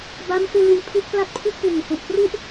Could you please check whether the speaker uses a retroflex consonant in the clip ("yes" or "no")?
no